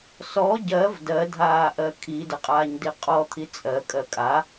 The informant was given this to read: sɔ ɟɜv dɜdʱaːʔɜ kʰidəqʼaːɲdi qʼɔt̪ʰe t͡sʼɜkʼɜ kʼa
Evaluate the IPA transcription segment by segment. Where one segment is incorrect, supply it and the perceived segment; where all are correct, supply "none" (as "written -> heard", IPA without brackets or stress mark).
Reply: e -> i